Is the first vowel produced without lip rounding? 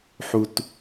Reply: no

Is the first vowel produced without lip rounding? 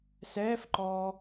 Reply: yes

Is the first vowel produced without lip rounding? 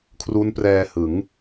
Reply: no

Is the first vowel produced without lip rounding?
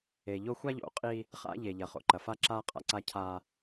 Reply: yes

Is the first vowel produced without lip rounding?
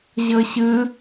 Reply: yes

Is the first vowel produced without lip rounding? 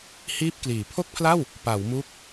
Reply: yes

